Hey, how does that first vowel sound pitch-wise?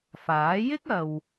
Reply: rising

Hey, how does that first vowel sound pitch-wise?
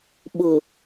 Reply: low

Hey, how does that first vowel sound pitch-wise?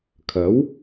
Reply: rising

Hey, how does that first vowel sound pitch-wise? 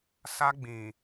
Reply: high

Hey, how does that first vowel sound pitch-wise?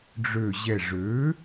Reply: low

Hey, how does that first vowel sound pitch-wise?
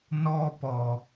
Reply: high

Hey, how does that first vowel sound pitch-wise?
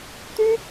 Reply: high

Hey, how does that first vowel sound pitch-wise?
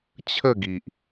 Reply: falling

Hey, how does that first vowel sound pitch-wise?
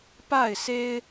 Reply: falling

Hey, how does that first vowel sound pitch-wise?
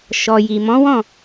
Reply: low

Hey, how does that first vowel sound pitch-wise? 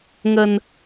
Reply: low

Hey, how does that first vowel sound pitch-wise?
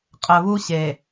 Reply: low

